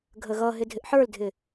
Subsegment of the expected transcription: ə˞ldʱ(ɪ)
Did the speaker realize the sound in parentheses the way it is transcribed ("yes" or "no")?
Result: yes